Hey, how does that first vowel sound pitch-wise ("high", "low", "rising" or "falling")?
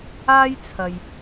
high